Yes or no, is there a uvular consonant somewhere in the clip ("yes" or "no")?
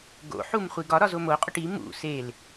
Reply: yes